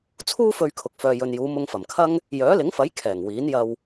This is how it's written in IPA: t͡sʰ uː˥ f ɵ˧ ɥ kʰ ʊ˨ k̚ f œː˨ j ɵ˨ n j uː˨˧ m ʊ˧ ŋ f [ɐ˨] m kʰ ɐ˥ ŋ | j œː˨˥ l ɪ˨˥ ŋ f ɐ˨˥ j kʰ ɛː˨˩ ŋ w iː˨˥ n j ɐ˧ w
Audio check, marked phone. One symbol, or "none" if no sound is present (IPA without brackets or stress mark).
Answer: ɐ˨˩